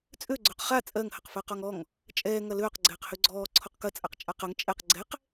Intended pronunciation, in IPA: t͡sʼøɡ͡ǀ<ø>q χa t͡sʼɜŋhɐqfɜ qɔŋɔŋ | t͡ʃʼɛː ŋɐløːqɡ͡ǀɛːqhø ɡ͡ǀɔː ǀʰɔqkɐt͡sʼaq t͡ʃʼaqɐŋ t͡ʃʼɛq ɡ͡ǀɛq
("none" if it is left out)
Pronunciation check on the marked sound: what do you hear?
ø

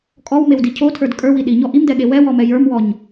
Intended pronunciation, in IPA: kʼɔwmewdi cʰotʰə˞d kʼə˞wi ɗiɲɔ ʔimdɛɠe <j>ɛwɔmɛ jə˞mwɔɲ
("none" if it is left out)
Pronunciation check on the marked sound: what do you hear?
w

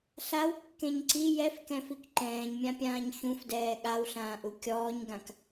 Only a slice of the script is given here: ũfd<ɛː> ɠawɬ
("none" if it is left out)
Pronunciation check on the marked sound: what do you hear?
ɛː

